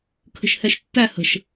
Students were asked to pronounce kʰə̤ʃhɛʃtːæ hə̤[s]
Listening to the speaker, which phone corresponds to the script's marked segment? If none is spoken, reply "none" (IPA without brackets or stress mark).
ʃ